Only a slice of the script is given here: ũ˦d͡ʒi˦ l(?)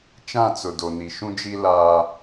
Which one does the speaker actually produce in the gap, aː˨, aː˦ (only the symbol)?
aː˦